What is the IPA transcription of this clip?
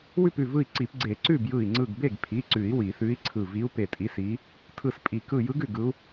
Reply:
w ʉ˥˩ p ʉ˧˩ v ɯ˧˩ i̯ ǀ i˨˩˦ p ɡ͡ǀ e˨˩˦ ǀ ʉ˥˩ b j ɯ˧˩ i̯ ŋ͡ǀ ɯ˧˩ ɡ b e˥˩ ɡ pʰ i˩˧˩ ǀ ʉ˨˩˦ i̯ w i˨˩˦ θ ʉ˧˥ i̯ ǀʰ ɯ˧˩ v i˧˥ u̯ p e˧˩ tʼ i˧˥ s i˧˥ | tʰ ɯ˧˩ s pʼ i˨˩˦ k ɯ˧˩ j ɯ˧˥ ɡ ʉ˥˩ ɡ ɯ˧˥ u̯

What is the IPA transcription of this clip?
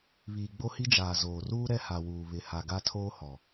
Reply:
β iː˨ ɡ͡b o˦ h i˦ d͡ʒ aː˨ z oː˨ r uː˦ ɾ ɛ˦ h a˨ w uː˨ β ɪ˨ h a˨ ɡ a˦ tʰ oː˦ h ɔ˨

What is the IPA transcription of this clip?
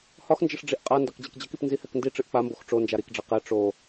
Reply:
h ɒ x n d͡ʒ ə ʂ ɖ͡ʐ i ʔ qʼ a n d ɒ k d͡ʑ e k d͡ʑ ə k i p n z i h ɛ k n d i ʈ͡ʂ ɨ ʔ k͡p a m b o x ʈ͡ʂ o n d͡ʒ a ɾ i k ɖ͡ʐ ɛ q ɛ ʈ͡ʂ o

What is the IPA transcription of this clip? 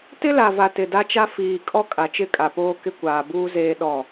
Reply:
t ɪ˦ l a˨ v a˨ t ɪ˨ d a˦ t͡ʃ a˦ f iː˨ kʼ ɔ˦ kʼ a˨ t͡ʃ ɪ˦˨ kʼ a˨ p oː˦ k ɪ˦ kʷ aː˨ b uː˦ z eː˦ ɗ ɔ˦˨

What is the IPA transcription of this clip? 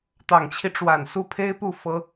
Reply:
t̪ ɑ˨˩ ŋ t͡ɕʰ i˦ ʈ͡ʂ w a˨˩ n s u˥˩ pʰ e˥ ɪ̯ p u˥˩ f ɤ˥

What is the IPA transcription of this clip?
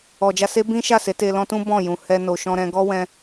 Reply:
ɔ˨ d͡ʒ a˧ s e˦ b ĩ˦ ʃ a˦˨ s e˨˦ t e˧ l ɔ̃˦ t ũ˦ b ɔ̃˦˨ j ũ˨ h ɛ˧ n o˨ ʃ ɔ̃˧ ɾ ɛ̃˧ ɡ ɔ˦ w ɛ̃˧

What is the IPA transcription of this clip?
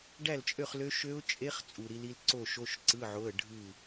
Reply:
ɖ æ˥˨ l t͡ʃʼ ø˥˨ χ l ø˦˥ ʃ ø˦˥ ʊ̯ t͡ʃʼ e˦˥ χ t͡sʼ u˨˩ ɾ i˨˦ l i˦˥ l ǀ o˥˨ ʃ o˧˥˧ ʃ ǀ ɯ˧˥˧ ʕ o˧˥˧ ə̯ ɖʱ ɯ˥˨

